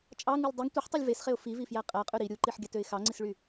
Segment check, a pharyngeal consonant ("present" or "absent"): present